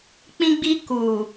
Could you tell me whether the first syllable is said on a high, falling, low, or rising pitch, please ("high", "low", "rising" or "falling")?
high